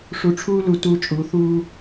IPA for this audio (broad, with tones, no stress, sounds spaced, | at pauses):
ʂ u˨ ʈ͡ʂʰ uː˦ l u˨ t u˦ t͡ʃʼ u˨˦ θ uː˦